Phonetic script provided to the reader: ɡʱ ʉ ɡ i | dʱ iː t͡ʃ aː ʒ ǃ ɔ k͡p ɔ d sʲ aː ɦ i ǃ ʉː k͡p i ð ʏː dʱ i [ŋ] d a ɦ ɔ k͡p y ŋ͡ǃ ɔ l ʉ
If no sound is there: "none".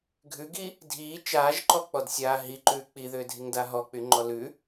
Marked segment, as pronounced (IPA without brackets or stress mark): ŋ